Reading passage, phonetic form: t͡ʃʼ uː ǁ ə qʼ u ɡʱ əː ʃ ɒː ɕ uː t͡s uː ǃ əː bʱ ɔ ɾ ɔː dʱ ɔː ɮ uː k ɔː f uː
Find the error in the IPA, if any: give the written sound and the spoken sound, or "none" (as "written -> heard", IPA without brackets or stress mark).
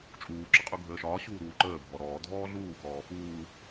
t͡s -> ɾ